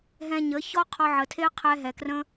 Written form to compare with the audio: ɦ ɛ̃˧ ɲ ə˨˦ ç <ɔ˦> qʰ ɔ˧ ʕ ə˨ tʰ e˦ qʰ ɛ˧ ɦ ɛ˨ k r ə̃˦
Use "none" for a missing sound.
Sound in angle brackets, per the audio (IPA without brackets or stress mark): ɔ˦